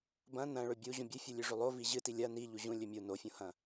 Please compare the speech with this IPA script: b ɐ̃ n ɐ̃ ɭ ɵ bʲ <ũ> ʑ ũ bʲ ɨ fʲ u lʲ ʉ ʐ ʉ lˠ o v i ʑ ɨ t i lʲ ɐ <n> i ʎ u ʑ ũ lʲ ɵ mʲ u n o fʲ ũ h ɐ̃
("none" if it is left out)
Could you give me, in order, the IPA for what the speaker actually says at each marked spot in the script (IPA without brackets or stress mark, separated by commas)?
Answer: u, n